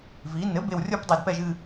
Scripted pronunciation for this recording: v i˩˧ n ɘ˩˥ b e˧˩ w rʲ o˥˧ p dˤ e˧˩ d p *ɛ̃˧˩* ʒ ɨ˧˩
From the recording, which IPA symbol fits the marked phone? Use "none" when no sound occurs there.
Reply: ɛ˧˩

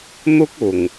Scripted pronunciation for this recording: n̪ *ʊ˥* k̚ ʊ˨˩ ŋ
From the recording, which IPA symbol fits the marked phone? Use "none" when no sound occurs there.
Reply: ʊ˥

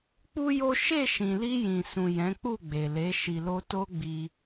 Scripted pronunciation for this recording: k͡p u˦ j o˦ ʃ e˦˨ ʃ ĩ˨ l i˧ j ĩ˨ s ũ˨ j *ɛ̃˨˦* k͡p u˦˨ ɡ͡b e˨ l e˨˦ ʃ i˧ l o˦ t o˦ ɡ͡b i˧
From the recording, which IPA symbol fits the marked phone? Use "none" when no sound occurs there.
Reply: ɛ̃˨˦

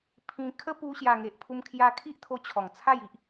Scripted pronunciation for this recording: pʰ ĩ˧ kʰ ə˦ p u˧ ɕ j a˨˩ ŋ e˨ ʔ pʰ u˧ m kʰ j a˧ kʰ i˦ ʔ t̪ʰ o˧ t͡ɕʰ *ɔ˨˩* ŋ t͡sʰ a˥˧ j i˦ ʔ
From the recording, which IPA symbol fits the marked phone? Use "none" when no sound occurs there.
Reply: ɔ˨˩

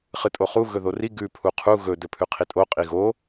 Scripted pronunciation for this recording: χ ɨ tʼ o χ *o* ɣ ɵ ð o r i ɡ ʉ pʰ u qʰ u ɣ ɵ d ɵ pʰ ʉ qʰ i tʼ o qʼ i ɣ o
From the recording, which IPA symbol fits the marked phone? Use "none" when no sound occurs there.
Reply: u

